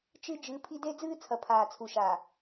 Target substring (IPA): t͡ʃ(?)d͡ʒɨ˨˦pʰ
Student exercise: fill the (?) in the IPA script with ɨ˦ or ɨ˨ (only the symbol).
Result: ɨ˦